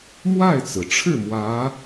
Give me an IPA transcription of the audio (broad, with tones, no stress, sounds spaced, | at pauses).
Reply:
m w a˥˩ ɪ̯ t͡s ɹ̩˩ ʈ͡ʂʰ ɻ̩˥˩ m w ä˧˥